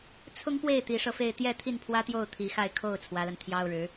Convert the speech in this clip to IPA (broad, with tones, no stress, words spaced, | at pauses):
t͡sʰʊ˥ŋpwe˥˩ɪ̯ t̪i˧˥ʂɤ˧fe˥˧ɪ̯ t̪jɛ˥˧t̪ʰi˥˩npʰwä˥t̪jo˥˩ʊ̯ t̪ʰi˧˥xa˥˧ɪ̯ kʰo˥˩ʊ̯ t͡sʰwä˧˥la˧nt̪ʰjɑ˥ʊ̯ɻɻ̩˧˥